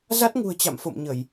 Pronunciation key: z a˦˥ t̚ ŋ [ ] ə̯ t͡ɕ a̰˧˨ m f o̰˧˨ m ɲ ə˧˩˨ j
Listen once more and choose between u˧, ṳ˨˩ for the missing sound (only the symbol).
ṳ˨˩